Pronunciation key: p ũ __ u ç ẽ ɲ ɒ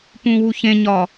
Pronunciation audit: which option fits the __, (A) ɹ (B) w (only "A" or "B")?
B